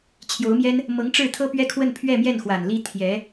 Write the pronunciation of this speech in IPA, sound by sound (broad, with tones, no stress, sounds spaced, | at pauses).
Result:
t͡ɕʰ j o˧˥ ʊ̯ m j ɛ˥ n | m ɤ˧˥ ŋ ʈ͡ʂ ɻ̩˥˩ t̪ʰ ɤ˥ p ɥ ɛ˥ kʰ w ə˥˧ n pʰ ɥ ɛ˥˧ m j ɛ˥˩ n x w a˨˩ n l i˥ t̪ʰ j ɛ˧˥